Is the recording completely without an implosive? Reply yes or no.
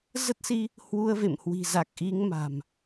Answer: yes